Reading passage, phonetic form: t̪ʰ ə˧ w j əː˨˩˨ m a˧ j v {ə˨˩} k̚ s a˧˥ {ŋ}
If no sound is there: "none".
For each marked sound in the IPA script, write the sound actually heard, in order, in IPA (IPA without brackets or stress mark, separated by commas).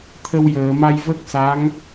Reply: ə˦˥, ŋ